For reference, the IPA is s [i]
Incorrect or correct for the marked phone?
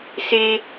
incorrect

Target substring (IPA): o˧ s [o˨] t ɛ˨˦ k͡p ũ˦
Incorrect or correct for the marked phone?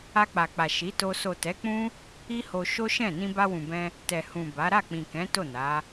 correct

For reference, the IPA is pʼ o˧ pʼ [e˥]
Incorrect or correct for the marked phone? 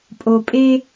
correct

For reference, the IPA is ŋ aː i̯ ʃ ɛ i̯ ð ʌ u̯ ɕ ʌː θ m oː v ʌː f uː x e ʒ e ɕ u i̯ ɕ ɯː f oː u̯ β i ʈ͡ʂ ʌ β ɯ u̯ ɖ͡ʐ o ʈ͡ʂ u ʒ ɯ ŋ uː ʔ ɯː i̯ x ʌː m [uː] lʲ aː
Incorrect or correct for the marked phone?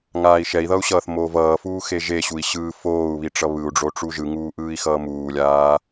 correct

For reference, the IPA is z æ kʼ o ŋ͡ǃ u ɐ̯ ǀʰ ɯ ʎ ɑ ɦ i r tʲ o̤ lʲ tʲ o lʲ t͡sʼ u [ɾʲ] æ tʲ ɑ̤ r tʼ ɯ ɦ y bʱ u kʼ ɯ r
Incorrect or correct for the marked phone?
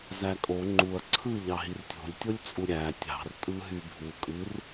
correct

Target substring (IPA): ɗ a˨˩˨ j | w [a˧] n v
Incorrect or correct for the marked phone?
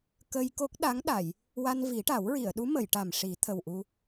correct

